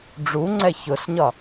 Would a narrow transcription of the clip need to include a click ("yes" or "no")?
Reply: yes